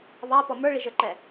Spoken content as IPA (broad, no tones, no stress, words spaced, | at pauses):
βɑpɔ mə˞ɭiʒə˞ǃɛ